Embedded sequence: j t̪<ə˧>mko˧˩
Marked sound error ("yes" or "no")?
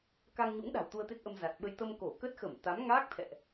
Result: no